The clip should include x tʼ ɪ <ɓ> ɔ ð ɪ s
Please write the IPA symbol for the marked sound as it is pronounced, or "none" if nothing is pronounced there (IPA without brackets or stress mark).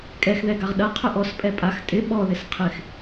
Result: ɓ